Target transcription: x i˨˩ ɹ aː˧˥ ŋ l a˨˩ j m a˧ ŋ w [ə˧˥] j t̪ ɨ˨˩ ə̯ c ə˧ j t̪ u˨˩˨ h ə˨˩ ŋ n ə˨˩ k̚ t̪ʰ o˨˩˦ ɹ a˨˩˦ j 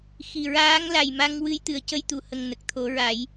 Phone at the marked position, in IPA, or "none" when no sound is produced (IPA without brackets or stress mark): ɨ˧˥